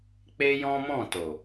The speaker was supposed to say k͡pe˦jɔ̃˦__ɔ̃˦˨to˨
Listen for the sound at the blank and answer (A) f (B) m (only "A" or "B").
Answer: B